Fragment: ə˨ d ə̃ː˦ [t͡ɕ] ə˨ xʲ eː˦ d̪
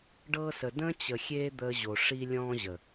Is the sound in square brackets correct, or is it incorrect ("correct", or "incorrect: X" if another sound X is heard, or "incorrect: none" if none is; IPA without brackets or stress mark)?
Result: correct